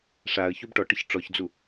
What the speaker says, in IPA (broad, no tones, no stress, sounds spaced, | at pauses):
ʂ a ə̯ ç u b ʈ ɔ ʈ ə ç ʈ͡ʂ ɔ ç d͡z u